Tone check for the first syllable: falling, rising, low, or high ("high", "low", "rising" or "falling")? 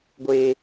high